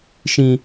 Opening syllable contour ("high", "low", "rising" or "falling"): high